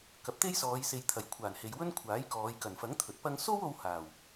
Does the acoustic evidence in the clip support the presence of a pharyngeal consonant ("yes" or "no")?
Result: no